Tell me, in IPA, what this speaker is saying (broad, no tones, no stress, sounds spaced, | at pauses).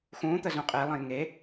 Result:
x ũ t̪ ə z ũ qʼ e lˠ ə̃ j ŋ e